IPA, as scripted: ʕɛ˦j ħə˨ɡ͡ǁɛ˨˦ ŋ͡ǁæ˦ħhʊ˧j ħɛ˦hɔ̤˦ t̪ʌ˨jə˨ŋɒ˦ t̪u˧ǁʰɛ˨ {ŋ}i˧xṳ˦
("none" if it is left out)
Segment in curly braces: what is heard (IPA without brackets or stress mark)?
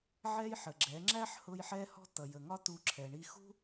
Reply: ɳ